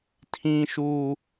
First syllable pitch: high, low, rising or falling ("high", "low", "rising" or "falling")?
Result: high